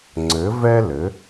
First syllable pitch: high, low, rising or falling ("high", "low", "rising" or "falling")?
rising